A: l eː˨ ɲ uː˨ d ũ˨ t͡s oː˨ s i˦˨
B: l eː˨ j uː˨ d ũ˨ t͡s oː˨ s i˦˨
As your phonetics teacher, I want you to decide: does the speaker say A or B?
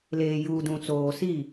B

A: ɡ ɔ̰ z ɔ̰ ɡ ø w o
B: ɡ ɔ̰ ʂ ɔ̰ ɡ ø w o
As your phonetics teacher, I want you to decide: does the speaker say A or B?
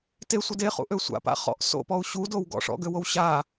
B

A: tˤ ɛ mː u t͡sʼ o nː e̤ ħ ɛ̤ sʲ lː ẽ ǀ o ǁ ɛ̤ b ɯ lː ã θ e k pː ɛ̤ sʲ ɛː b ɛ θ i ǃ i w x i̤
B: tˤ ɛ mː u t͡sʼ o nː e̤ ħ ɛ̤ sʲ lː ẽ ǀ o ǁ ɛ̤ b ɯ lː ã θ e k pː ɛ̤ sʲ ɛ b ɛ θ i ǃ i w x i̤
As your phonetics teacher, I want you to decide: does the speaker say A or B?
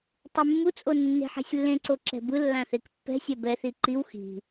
B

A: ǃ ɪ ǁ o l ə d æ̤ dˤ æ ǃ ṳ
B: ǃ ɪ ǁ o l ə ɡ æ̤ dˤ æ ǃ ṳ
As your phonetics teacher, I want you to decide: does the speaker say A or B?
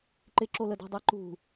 A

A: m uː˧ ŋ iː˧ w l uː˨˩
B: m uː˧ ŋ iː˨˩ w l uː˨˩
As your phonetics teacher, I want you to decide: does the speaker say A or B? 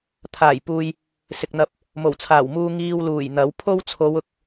A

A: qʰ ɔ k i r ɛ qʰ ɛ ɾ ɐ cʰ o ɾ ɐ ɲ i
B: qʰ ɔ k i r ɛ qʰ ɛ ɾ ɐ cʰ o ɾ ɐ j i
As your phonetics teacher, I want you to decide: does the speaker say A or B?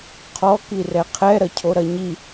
A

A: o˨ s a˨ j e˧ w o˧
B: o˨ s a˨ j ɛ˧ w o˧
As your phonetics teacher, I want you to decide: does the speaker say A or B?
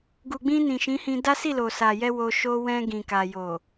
B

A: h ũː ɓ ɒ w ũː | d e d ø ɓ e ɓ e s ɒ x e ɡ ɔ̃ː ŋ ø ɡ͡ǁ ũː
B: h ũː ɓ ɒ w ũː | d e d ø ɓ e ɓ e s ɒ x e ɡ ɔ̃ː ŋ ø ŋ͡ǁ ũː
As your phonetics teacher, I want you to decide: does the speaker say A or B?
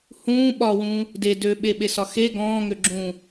A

